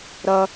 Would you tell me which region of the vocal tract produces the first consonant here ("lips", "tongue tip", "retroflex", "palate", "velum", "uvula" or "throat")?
tongue tip